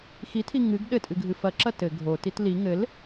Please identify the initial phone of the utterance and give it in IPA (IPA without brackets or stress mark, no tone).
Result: x